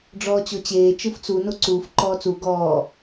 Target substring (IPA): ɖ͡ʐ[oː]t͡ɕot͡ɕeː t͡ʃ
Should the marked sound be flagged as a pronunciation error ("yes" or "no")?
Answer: yes